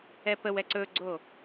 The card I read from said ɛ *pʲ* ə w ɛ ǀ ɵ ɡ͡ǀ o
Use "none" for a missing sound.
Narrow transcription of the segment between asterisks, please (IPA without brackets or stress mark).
p